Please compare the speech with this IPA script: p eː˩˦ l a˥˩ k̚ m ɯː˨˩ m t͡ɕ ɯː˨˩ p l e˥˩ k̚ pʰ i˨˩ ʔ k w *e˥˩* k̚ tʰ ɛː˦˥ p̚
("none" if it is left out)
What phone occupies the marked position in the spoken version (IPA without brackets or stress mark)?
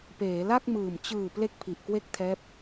e˥˩